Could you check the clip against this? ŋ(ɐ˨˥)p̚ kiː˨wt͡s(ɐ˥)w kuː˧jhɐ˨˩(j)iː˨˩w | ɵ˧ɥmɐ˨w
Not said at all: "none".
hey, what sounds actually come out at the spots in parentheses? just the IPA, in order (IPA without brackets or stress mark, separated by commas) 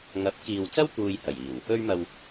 ɐ˨˥, ɐ˥, j